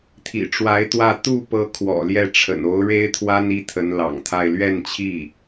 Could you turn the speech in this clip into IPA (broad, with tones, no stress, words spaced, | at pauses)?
t̪ʰḭ˨˩ʈ͡ʂwa˧˥ɪ̯t̪wä˥˧ t̪u˥˩pɤ˧˥ kʰwɔ̰˨˩ljɛ˥˩ʈ͡ʂʰə̰˨˩n o˧˥ʊ̯ɻe˥ɪ̯t̪ʰwa˥n i˥t̪ʰə˧˥nlɑ̰˨˩ŋt̪ʰa˥˧ɪ̯ lɥɛ˥˧nt͡ɕʰi˥˩